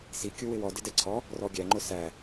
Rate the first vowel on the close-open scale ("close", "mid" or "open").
close